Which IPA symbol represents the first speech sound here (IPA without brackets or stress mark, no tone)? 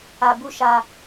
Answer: a